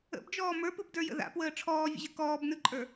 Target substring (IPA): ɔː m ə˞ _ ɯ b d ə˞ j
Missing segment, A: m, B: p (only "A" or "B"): B